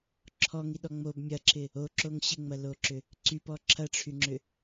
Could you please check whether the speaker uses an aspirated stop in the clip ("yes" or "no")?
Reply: yes